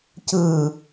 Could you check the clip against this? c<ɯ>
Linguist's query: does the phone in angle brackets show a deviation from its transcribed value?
no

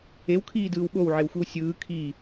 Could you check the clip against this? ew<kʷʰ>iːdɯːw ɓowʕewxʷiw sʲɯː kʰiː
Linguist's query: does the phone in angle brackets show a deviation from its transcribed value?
yes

